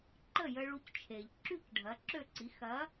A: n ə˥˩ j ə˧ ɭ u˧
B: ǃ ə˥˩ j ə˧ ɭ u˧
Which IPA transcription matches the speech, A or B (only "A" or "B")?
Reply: B